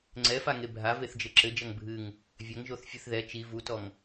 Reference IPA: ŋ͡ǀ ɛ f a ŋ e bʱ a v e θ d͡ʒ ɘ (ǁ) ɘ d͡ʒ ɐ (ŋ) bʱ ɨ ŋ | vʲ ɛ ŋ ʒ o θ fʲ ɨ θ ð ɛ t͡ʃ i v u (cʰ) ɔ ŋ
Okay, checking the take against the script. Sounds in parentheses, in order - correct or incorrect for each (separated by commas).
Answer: correct, correct, incorrect